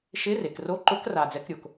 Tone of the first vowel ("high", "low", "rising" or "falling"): rising